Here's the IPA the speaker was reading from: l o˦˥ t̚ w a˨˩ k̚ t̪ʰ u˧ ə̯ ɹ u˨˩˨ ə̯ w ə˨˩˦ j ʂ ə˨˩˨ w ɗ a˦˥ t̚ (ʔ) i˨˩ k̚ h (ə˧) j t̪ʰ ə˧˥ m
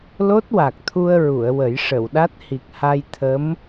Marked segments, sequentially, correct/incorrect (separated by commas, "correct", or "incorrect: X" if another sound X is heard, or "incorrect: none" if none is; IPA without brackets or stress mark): incorrect: h, incorrect: a˧